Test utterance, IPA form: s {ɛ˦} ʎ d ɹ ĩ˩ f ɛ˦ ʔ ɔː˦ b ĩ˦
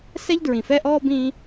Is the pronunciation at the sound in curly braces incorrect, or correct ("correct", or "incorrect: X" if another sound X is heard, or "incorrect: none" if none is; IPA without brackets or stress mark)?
correct